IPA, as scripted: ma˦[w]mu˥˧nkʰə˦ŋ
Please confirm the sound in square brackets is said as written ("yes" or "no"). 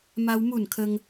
yes